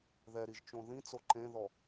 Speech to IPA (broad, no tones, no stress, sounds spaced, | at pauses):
ð ɛ ɾ i ʒ t͡ʃ õ ð ĩ t͡s o ǃ ẽ ð ɔ